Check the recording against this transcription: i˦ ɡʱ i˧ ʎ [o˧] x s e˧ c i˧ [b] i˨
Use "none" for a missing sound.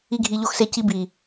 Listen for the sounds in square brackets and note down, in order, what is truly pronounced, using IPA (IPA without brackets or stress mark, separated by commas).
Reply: o˧, b